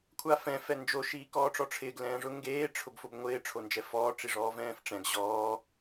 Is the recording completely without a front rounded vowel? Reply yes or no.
yes